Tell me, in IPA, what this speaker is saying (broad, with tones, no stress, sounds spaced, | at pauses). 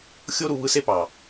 xʲ o˦ ɾ u˧ β ɯ˧ s e˦ p ɑ˨